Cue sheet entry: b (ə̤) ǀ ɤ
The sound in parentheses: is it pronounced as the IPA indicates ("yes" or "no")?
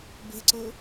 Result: yes